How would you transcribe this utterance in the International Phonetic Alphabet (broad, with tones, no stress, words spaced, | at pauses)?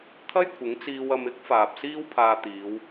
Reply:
t̪ʰɐ˥jkʷʰɪ˨˥ŋt͡siː˧wɐ˧m ɪ˥k̚ faː˨p̚siː˥wpʰaː˧ t̪iː˨˧w